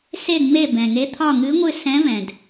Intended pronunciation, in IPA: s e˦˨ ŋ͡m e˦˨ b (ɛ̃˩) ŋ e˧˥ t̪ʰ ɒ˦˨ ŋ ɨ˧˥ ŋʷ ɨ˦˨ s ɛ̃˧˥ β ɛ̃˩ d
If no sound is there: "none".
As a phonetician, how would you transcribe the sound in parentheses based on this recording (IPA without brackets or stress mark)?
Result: ɛ̃˩